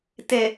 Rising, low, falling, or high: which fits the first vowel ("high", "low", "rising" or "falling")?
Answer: low